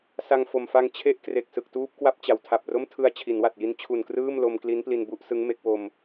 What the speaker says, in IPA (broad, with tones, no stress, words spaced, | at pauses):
sa˧ŋfo˨˩mfa˧ŋ t͡ɕʰe˥˩ʔkre˨˩k̚ sɯ˨˩k̚tuː˦˥p̚kwa˦˥p̚t͡ɕa˩˦w tʰa˨˩p̚ro˥˩m tʰɯ˧a̯ t͡ɕʰi˩˦nwa˨˩t̚ ji˦˥nt͡ɕʰu˨˩nkrɯː˥˩m lo˧mkli˦˥npli˧n bu˥˩ʔsɯ˦˥ŋ me˦˥k̚wo˧m